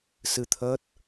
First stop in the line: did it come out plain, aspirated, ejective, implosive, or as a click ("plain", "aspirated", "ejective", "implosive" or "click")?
aspirated